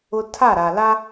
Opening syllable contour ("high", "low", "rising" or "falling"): high